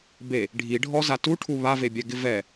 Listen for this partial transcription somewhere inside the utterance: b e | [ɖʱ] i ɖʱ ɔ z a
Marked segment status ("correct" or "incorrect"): correct